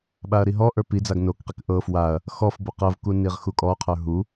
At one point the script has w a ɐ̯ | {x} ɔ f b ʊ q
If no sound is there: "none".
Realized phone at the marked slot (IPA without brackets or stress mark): x